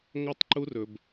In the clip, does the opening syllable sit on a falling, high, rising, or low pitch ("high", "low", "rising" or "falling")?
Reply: high